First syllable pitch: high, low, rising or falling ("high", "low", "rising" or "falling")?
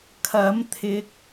rising